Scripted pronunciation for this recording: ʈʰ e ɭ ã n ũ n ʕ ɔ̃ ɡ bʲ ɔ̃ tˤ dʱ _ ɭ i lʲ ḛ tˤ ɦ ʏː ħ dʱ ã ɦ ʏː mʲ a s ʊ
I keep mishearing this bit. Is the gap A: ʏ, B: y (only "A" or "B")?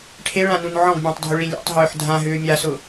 A